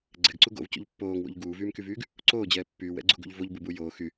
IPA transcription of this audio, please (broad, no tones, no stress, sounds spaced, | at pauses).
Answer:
ɡ͡ǀ ɛ ɡ ǀ u ɡ o̰ v c o̰ ʎ pː oː ŋ w o̰ ʎ ɡ uː v yː m k y v yː ɡ | ǀ oː d͡ʑ ɛː pː yː w ɛ̰ ɡ͡ǀ u ɡ ṵ ʎ v o ʎ b u b u j oː x y